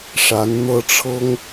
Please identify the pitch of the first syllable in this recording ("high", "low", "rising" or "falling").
rising